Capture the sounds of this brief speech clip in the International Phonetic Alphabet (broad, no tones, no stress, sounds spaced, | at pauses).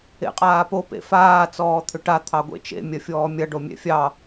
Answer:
ḛ qʼ aː p o p ḛ f aː t͡s ɔː t̪ʰ ʏ ʈ a t̪ʰ ɑ ɡʷ ḛ t͡ʃ ḛ mʲ ɐ fʲ ɔː mʲ ɐ ɖ o mʲ ɛ̰ fʲ ɑ